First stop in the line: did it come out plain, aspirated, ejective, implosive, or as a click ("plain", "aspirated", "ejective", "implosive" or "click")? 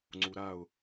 click